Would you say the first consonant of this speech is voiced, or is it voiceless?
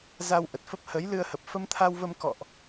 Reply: voiced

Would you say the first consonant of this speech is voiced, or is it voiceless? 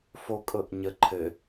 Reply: voiceless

